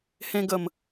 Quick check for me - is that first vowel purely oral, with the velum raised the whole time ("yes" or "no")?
no